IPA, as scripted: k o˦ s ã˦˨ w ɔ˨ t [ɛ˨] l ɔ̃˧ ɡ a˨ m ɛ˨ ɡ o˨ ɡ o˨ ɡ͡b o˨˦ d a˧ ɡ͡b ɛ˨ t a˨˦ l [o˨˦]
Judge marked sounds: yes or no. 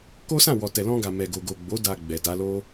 yes, no

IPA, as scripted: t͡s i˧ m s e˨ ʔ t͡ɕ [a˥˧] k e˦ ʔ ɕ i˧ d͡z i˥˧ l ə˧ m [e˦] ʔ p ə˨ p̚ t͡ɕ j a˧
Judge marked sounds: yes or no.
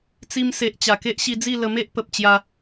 no, yes

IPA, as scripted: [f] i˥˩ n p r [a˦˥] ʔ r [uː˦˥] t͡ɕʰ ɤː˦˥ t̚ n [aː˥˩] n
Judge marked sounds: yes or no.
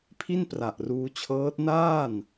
no, no, no, yes

